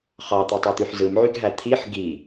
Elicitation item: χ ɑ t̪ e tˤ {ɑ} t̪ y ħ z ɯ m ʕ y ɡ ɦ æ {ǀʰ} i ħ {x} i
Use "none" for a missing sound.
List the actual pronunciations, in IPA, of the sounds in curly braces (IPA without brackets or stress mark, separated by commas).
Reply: ɑ, t̪ʰ, ɡ